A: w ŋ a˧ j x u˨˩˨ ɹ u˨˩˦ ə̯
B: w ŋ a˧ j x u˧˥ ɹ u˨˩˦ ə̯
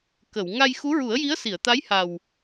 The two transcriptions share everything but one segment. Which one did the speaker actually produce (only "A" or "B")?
B